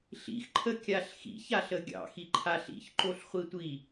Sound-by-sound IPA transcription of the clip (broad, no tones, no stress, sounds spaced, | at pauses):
ɬ ḭ x ǃʰ ə kʲ a ɬ x ḭ ç a ɬ ə ɡʲ ɑ̰ x i ǃʰ a ɬ ḭ ç ǃ o ɬ χʷ i tʷ i